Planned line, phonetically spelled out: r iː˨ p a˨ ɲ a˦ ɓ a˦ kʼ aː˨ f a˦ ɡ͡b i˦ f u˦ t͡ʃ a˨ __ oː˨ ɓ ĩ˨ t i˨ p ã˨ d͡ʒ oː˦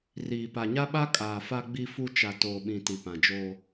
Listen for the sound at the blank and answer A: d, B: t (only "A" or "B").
B